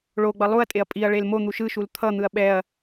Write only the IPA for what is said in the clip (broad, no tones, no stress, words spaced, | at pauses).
ɭo ɡ͡bʌlˠuɐ̯tʼeɐ̯ pʼiɐ̯ ɭelmon̪u ʃɯʃul t̪ʰʌn̪ɯɐ̯ ɓɛɐ̯